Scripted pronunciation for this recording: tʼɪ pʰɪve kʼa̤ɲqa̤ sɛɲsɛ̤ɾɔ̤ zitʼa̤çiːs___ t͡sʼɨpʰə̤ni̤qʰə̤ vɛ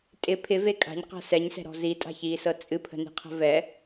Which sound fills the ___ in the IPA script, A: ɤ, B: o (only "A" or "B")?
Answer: A